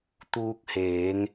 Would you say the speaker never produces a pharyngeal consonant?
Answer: yes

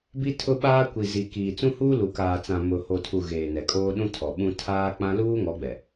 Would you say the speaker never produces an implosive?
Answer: no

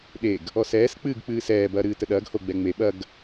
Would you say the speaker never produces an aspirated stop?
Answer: yes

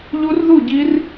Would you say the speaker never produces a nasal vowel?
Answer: yes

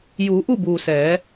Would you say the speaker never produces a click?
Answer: yes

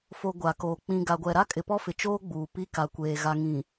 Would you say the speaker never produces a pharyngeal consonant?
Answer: yes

